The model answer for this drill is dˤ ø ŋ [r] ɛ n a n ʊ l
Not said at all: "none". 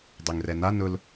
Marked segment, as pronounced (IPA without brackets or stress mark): r